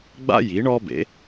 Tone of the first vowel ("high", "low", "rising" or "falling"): high